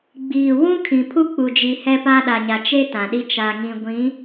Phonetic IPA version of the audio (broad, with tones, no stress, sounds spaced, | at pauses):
ɡ͡b iː˨ w ũ˦ kʰ ĩ˨ pʰ u˦ k͡p u˨ d͡ʒ i˨ h ɛ˦ p aː˦ ɗ a˨ ɲ a˨ t͡ʃ e˦ t ã˨ ɗ i˦ t͡ʃ a˨ ŋ ĩ˨ ɡʷ ĩ˨˦